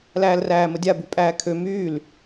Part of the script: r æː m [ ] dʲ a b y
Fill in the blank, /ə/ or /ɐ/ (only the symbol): ə